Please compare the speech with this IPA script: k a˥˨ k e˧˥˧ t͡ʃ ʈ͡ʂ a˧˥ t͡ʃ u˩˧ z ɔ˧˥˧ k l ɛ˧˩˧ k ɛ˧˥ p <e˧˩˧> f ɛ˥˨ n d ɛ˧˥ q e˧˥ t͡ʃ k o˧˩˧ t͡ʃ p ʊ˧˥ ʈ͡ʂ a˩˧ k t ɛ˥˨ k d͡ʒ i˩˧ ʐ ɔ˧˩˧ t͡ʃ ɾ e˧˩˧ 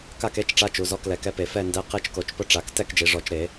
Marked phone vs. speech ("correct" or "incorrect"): correct